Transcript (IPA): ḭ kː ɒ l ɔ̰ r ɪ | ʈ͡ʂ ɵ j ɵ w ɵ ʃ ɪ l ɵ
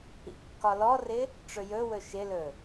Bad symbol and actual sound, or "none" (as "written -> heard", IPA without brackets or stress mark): ɔ̰ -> ɔ